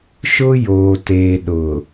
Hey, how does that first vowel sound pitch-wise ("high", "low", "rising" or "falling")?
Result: high